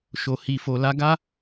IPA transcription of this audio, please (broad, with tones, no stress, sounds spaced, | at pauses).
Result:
ʃ o˨ h i˨ f o˨ l a˧ ɡ a˦